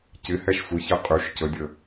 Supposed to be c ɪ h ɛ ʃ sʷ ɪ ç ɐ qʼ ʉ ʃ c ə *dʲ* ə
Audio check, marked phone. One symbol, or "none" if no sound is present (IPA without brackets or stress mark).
dʲ